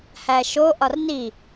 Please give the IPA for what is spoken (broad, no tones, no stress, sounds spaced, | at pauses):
h æ ʃ o ʔ ɒ r n i